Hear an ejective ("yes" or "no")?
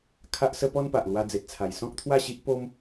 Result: no